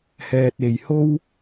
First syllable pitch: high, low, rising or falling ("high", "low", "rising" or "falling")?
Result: low